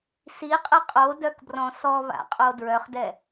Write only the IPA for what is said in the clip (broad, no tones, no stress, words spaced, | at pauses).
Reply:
siqʼe qʼodœkbrɔ̃ sɔβa̰qʼo dɹœχdɛ